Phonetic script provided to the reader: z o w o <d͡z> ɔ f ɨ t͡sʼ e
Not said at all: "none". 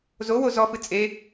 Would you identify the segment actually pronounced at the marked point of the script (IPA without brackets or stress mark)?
z